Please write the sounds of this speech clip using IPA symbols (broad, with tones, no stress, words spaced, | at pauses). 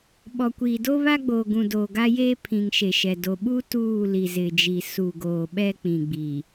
ɓɔ˨kʷiː˨ do˦βa˦ɡ͡boː˨ɡũ˨ doː˨ɡa˦jeː˦pʰĩ˨ŋ ʃe˨ʃɛ˨ do˨ɓu˦ tuː˦˨ li˨zɪ˨d͡ʒi˨ su˨ɡoː˨ ɓɛ˦k͡pĩ˨ɡ͡bi˨